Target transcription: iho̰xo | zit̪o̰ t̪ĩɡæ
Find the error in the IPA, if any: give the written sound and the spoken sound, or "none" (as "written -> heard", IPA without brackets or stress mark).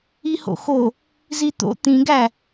none